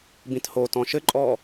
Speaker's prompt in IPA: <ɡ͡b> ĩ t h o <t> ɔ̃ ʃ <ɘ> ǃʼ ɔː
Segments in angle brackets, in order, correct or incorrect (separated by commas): incorrect, correct, correct